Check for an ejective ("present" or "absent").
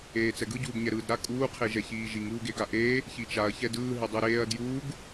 present